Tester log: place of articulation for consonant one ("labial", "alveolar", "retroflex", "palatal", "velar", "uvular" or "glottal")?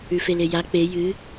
labial